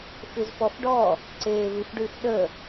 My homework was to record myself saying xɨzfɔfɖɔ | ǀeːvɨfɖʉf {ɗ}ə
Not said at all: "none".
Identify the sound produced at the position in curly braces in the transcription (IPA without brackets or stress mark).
ɗ